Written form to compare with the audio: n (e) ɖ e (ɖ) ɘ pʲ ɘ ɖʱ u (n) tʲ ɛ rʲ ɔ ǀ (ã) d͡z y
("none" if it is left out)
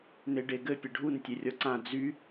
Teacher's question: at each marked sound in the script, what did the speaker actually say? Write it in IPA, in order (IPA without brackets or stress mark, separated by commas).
e, ɡ, n, ã